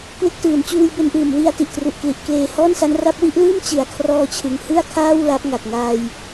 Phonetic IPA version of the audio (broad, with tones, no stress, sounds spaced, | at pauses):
k w e˦˥ k̚ t ɯː˩˦ n t͡ɕ uː˧ j b e˧ n ʔ ɯː˨˩ m w i˧ a̯ t i˨˩ ʔ t r u˨˩ ʔ k l i˨˩ ʔ k l eː˧ h ɔː˥˩ n s a˦˥ n r a˦˥ p̚ w i˥˩ ʔ l ɯː˥˩ m t͡ɕ ɯ˩˦ a̯ kʰ r ɔː˧ t͡ɕʰ ɯ˩˦ ŋ h ɯ˥˩ a̯ kʰ aː˥˩ w l a˦˥ p̚ ŋ a˨˩ k̚ ŋ aː˧ j